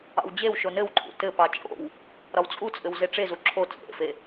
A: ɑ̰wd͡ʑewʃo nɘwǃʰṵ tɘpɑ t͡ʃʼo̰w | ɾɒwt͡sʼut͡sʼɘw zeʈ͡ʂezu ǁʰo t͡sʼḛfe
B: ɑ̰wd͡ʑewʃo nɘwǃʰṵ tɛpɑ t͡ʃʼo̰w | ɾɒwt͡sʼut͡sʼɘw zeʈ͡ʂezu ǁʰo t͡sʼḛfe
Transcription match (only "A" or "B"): A